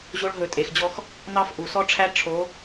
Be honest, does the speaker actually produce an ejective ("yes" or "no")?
yes